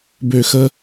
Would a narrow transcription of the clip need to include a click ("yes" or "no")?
no